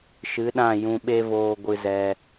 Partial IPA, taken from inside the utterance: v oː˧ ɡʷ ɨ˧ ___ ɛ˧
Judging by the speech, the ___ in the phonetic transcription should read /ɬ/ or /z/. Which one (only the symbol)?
z